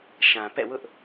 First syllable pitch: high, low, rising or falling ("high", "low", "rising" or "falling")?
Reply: low